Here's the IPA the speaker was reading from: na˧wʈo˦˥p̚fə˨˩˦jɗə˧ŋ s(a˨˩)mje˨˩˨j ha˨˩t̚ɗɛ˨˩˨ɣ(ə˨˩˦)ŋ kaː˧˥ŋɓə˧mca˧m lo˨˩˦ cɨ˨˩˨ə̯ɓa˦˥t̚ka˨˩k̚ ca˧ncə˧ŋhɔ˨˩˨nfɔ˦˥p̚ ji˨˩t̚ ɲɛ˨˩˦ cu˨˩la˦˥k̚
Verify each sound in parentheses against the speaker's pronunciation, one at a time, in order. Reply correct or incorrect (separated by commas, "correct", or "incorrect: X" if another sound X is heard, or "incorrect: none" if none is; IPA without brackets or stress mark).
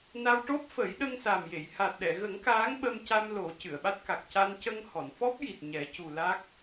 correct, correct